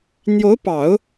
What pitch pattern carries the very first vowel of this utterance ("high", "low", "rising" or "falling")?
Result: rising